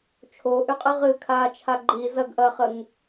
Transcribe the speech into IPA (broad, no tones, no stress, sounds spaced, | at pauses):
t͡ʃʰ o ʔ y qʼ ɨ ʁ ɨ kʰ aː t͡ʃʰ a ɡ͡ǃ i z ɐ ɡ ʔ ɐ χ ə ŋ